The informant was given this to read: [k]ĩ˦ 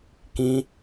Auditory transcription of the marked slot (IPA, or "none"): k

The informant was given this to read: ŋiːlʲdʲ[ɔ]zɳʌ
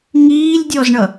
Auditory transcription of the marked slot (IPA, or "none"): ɔ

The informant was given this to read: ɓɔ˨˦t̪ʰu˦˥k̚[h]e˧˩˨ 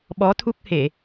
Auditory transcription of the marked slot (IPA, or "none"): h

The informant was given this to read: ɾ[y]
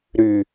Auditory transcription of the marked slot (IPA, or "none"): y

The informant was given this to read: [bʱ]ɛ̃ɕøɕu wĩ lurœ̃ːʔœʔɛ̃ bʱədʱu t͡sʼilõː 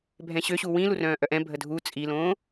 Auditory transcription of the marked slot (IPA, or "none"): bʱ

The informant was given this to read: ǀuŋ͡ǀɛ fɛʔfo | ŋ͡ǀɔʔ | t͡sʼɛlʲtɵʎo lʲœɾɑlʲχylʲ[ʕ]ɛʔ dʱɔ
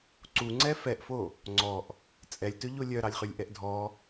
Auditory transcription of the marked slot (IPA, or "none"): ʔ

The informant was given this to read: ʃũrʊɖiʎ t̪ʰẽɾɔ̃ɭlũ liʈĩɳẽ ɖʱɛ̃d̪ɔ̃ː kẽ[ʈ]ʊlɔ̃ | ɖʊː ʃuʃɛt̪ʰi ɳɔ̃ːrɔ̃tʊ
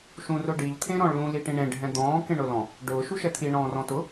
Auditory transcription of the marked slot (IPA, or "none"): ɳ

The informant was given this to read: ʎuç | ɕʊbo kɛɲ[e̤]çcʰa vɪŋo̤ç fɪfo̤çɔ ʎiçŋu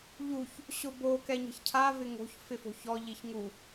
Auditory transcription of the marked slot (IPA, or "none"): ɛ̤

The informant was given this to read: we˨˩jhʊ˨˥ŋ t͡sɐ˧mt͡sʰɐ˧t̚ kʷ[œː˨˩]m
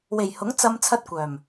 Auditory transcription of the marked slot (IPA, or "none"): œː˨˩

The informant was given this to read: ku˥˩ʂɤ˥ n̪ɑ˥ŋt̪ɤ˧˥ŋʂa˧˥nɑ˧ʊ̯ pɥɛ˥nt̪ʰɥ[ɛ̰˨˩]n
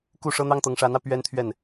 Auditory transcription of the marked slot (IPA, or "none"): ɛ˥˩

